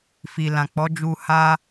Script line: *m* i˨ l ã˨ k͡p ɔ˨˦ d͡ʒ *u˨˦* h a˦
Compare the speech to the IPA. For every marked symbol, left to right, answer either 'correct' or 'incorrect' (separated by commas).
incorrect, incorrect